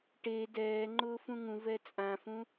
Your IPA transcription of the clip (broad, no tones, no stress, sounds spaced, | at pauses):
ʈ e d ɛː ŋ͡ǃ ʊː f ũ ŋ ũ v ɛ t͡sʼ ã f ũ